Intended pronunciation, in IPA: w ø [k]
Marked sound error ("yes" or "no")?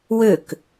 no